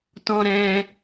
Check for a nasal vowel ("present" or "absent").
present